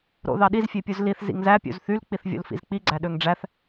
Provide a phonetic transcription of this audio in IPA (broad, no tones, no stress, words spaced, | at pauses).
ɾo̰ðɑɗiz fʲepʲuzliθ zḭŋzæ pʲṵzθyl k͡piθvʲo̰lfḭzk͡pi ɡ͡ǀæɗøŋɖ͡ʐæθ